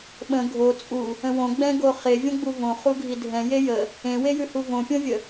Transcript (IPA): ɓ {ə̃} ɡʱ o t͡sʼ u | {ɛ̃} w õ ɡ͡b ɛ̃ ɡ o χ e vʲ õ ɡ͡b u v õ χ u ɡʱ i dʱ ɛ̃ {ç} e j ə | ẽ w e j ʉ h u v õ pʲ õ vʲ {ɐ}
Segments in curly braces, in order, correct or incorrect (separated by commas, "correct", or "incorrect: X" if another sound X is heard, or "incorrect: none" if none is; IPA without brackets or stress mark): correct, incorrect: ə̃, incorrect: j, incorrect: ə